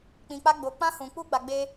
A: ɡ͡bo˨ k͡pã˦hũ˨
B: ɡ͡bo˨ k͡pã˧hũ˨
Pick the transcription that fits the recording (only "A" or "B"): B